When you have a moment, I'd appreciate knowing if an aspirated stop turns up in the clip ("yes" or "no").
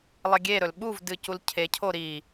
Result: yes